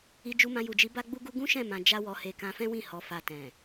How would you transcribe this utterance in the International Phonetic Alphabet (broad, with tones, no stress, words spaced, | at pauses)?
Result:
i˧ d͡ʒu˧mã˧ju˨d͡ʒi˨˦ ba˦ɡ͡bu˦ɡu˦ ɡũ˦ ʃɛ̃˦˨mã˨ d͡ʒa˧wɔ˨he˨ kã˧fɛ̃˦wĩ˦˨ hɔ˨˦fa˧ tɛ̃˨